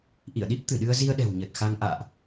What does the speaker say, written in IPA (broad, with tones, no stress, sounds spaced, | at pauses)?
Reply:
ʔ ḭ˧˨ ə̯ ɗ i˦˥ p̚ t̪ ɨ˧˩ ɗ ɨ˧ ə̯ z i˧ ə̯ ɗ ɛ̤˨˩ w ɲ ə˨˩ t̚ x a˧ ŋ ʔ a̰ː˧˨ ʔ